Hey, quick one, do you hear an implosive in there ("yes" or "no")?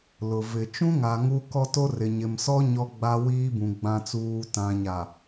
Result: no